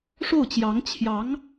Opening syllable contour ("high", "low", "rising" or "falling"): falling